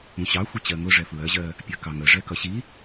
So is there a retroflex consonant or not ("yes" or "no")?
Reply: yes